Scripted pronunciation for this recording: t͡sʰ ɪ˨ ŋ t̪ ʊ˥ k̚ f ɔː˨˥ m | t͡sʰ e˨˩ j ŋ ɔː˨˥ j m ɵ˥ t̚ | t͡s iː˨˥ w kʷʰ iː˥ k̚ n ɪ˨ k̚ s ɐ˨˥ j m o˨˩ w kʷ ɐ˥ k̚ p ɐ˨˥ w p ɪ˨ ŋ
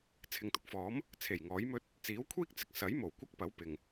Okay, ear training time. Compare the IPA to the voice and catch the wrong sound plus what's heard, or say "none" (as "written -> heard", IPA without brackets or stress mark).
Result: n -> t͡s